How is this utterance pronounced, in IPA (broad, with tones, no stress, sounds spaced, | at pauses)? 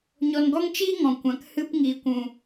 ɲ ɔ˧ n ɡ ɔ˦ ŋ t͡ʃ iː˦ ŋ ɔ̃˨ kʷ ã˨ k h ɨ˧ p ŋ iː˨ kʷ ũ˨